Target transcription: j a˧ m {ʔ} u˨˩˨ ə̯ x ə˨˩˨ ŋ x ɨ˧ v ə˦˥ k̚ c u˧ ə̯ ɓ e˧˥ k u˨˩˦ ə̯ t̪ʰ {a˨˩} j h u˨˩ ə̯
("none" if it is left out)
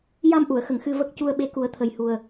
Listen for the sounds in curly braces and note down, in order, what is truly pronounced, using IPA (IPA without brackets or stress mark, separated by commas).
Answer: ʔ, ə˨˩